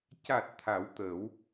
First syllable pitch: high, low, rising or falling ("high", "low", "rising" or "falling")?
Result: low